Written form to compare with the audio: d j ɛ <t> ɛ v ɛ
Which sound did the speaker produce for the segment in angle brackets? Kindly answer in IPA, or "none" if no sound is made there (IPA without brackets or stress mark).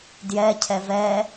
cʰ